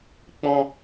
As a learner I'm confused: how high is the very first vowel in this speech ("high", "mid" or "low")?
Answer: mid